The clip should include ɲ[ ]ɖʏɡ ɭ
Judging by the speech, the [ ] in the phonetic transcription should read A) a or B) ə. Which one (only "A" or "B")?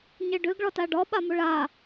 B